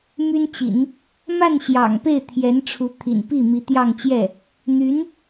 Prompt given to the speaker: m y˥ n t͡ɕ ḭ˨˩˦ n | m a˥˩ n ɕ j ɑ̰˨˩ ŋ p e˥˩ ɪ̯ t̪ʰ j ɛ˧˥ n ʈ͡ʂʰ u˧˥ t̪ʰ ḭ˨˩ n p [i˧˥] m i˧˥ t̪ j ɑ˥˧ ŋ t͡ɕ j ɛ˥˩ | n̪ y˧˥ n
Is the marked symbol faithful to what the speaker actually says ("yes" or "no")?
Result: no